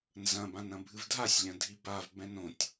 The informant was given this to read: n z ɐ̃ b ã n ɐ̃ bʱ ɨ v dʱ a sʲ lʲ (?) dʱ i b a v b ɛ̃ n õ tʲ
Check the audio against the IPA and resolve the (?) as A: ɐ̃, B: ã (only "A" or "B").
A